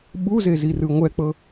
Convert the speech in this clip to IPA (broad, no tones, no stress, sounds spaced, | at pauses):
ɓ u z e z i r ɯ ŋʷ ɛ k͡p ɤ